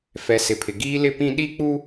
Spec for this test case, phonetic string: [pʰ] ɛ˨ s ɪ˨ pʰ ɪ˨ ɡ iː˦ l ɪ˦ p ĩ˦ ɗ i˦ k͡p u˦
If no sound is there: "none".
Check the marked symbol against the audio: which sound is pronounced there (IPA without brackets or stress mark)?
f